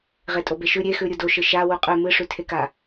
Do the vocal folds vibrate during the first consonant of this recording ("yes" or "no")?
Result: yes